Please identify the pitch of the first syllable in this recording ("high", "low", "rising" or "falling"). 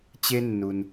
high